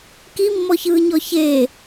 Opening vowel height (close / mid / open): close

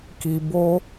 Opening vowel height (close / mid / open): close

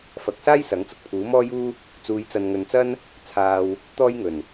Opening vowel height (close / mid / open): open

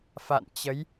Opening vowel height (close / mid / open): open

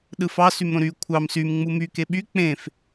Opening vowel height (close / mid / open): close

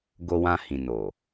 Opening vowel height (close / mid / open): mid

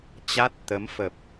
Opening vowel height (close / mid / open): open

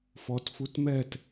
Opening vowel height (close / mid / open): mid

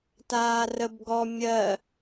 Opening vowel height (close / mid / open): open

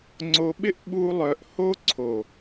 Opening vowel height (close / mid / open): mid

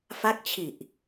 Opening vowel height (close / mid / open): open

